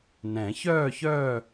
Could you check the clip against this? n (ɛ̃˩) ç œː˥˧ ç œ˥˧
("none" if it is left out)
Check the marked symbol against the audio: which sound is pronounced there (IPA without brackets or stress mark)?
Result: ɛ̃˨˩˦